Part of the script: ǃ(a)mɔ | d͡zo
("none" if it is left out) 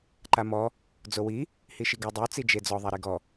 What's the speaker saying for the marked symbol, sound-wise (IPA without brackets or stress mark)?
a